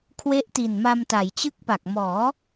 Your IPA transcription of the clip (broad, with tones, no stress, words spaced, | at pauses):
kʰwe˦˥ʔti˨˩nma˧mta˩˦j t͡ɕɯ˦˥k̚pa˨˩k̚mɔː˩˦